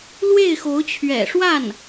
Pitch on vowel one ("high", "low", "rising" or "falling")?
falling